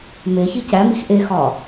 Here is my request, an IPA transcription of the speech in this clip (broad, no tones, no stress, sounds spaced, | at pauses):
m e ç i c æ m i x ʔ e x ɒ